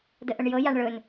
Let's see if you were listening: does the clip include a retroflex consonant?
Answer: yes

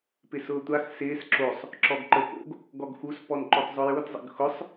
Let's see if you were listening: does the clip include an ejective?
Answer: no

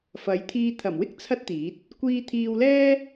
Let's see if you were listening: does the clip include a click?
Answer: no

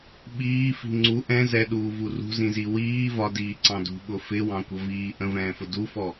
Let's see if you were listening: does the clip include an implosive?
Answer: yes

